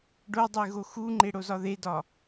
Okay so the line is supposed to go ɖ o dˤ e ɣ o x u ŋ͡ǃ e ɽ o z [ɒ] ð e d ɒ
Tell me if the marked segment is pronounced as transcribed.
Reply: yes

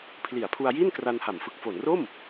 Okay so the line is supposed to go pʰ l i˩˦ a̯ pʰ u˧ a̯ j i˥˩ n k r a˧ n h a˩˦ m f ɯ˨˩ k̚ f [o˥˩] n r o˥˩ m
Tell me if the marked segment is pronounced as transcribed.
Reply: no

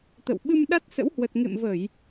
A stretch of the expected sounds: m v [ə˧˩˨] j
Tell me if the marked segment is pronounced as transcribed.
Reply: yes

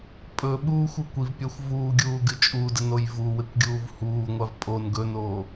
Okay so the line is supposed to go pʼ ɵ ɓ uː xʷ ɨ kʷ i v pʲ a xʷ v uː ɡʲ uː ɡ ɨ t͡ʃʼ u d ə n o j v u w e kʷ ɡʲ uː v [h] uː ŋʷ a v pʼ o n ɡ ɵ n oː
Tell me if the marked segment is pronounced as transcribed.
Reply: yes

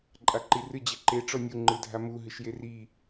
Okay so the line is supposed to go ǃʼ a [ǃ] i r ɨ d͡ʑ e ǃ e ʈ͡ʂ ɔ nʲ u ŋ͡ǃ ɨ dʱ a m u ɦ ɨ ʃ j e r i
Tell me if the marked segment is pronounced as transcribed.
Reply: yes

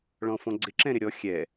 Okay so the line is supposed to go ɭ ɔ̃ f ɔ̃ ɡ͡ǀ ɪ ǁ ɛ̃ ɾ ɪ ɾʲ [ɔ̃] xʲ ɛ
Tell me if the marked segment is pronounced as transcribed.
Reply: no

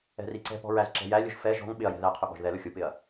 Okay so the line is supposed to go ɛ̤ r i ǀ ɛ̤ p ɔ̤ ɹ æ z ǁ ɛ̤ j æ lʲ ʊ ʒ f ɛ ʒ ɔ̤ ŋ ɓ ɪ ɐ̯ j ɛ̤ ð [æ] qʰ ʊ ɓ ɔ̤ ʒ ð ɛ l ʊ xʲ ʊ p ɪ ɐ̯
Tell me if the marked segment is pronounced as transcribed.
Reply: yes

